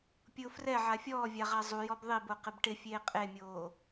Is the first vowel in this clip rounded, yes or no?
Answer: yes